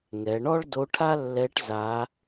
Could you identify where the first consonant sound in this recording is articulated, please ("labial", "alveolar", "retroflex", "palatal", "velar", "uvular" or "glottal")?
velar